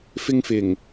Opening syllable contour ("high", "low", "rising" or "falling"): high